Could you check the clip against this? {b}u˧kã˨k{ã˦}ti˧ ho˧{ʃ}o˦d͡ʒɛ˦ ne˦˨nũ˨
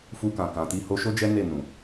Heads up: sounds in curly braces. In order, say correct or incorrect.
incorrect, incorrect, correct

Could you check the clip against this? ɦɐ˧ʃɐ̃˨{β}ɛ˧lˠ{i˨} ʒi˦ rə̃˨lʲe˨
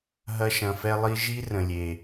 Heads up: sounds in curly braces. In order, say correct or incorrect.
incorrect, incorrect

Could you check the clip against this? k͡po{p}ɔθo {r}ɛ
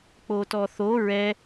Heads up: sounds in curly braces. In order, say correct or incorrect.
incorrect, incorrect

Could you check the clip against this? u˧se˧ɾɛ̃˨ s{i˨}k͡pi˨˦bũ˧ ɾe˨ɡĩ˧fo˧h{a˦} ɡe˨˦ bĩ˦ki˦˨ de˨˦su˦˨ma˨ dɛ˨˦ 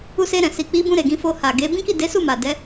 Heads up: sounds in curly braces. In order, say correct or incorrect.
correct, incorrect

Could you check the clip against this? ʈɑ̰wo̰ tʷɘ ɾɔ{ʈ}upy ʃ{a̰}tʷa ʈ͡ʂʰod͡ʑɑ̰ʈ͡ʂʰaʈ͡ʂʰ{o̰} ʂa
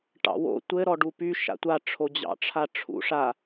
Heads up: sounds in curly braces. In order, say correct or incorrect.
incorrect, correct, incorrect

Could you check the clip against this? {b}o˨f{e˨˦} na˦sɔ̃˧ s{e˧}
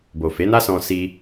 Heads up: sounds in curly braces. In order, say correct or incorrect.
correct, correct, incorrect

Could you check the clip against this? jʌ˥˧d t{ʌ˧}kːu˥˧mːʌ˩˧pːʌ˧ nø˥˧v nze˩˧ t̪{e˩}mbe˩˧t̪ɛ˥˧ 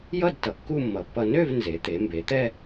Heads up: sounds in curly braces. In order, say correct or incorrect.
incorrect, incorrect

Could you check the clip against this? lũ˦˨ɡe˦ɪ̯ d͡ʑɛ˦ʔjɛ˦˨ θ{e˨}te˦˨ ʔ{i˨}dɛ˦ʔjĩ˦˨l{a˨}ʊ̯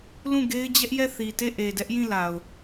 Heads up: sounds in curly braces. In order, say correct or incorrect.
incorrect, incorrect, correct

